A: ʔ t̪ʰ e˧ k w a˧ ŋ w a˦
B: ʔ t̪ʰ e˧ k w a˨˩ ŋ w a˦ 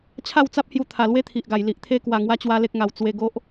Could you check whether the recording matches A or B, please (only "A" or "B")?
B